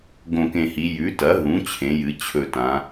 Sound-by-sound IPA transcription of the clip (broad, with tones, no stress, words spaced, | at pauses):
ɡõ˨˩kẽ˨˩hi˩˧ jʉ˩˧tɐ˩˧ɦũ˩˧ t͡ɕʰẽ˩˧jɨ˩˧ t͡ɕʰɵ˨˩tã˩˧